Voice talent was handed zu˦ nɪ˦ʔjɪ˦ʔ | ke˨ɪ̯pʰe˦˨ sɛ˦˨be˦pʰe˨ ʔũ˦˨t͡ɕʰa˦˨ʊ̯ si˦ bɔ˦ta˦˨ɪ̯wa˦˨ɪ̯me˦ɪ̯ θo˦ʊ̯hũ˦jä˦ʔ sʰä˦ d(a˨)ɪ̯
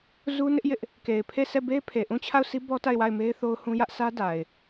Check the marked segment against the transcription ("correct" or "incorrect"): correct